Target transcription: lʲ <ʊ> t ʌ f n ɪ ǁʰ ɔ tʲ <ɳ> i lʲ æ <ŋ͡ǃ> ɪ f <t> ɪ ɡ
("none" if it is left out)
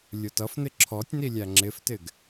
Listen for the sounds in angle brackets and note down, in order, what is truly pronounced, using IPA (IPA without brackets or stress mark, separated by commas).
ʊ, n, ŋ͡ǁ, t